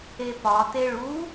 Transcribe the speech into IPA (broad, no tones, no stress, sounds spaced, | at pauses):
e p ɒ t e ɭ u